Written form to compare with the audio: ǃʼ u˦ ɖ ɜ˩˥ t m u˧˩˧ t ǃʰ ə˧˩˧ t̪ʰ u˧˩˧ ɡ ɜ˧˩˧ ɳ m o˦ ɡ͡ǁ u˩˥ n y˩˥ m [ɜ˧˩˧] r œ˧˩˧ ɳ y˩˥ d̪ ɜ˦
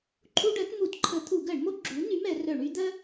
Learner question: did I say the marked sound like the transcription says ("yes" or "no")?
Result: no